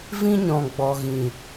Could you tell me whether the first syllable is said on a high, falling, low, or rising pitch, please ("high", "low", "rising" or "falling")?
high